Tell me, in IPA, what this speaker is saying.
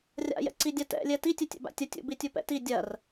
rʲa̰jɛ̰ǀidʲa tɛ̰lʲɛ titʲɛtʲɛ̰ba̰ tʲɐ tʲṵbitʲupɛ̰ ti dʲɐr

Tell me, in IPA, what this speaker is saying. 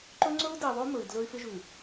ǃɵ˦ŋ͡ǀɵ˦u̯di˨ðˤo˦ mɵ˨i̯dlɵ˦y̯ fɪ˦ʒʉ˨

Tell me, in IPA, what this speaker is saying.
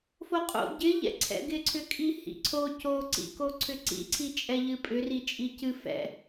foqʼo̰ ɟɪʎɛ̰ ǀʰɛ̰ɡɪǀʰʏkʼi hḭǀʰo coǀḭkoǀʰʏ ǀḭǀʰi t͡ʃʼɛʎɨpʼʏri t͡ʃʼicɨ fɛ̰

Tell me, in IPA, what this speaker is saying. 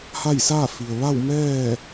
ha˥˨jsaː˥˨fi˩ə̯ ʋa˥˨w mɛː˥˨

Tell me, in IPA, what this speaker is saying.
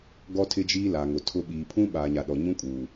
ɡɔ˦tʰɪ˦d͡ʒiː˦ la˨ŋʊ˨ tʰʊ˦ ɓiː˨pʰũ˦ ɓaː˨ɲa˨ɗɔ˨ ɲũ˦kʼuː˨

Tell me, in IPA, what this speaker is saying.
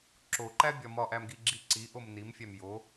ǁoǃæbʲɒ mɒʔæmɡiɡ͡ǁi ǀiʔom nimfʲæm jo

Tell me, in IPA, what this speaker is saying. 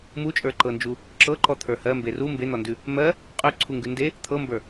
mut͡ʃʼə˞ǃɤnd͡ʒu | ǁɤǃɔt̪ʰə˞ hɜ mberu mben̪ɔndʉ | mɜ | qʼʉ ǀʰuŋɡʉnde | t̪ʰɤmbə˞

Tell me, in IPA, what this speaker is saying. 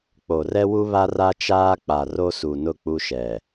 k͡po˨rɛ˦wu˦βa˦ ra˦t͡ʃaː˦k͡pa˨ ro˦su˨ nʊ˦˨k͡pu˦ʃɛ˨

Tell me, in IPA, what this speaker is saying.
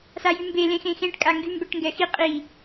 sajymbe lẽxẽxẽʈ kʼaŋɡy mbɛʈŋɡɛxi qʼi

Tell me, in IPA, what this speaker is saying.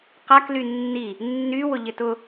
qakly nːi | nːywʊ ʎɪtʊ

